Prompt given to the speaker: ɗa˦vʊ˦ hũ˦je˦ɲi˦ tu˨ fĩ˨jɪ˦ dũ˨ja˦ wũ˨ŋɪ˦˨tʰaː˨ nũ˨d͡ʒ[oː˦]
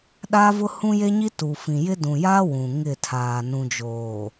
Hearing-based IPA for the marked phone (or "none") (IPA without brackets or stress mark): oː˨